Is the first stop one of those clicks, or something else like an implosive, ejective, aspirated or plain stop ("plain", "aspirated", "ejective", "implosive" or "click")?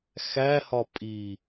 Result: ejective